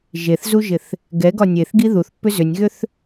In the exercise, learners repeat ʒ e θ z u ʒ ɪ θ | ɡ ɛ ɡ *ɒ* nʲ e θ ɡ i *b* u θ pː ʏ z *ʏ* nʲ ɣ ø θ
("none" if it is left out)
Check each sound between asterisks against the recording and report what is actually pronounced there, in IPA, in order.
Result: ɒ, ð, ʏ

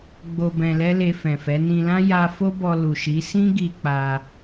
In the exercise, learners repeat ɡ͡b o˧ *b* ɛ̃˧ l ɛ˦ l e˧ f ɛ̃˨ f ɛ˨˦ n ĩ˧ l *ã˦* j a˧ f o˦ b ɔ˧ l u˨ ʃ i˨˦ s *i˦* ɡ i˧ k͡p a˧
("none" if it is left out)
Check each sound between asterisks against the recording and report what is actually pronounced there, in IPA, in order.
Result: b, ã˦, ĩ˦

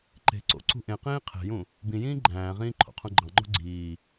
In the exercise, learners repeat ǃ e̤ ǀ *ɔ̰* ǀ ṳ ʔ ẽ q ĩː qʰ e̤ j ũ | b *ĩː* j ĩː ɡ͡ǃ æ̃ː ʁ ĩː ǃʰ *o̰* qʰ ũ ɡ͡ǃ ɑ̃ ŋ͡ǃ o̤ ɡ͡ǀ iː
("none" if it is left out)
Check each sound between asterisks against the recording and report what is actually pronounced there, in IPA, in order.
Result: o̰, ĩ, o̰

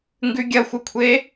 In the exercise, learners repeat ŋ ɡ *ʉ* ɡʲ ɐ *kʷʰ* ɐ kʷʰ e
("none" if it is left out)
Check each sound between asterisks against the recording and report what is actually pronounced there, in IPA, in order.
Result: ʉ, xʷ

